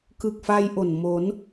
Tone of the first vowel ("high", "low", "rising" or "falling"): low